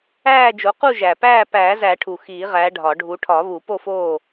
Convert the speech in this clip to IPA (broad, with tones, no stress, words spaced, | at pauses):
æː˥˨d͡ʒo˨˦ qu˥˨ʒæ˨˩pæː˥˨ pæː˨˩˦zæ˨˩˦ ʈʰu˨˩xiː˨˩˦ʁæ˨˦ ɖʱɒ˨˩˦ ɖʱu˨˦ ʈʰɒ˨˩˦βu˨˩˦ po˥˨foː˥˨